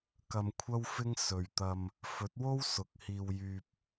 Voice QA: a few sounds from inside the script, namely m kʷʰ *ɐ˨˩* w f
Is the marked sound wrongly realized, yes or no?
yes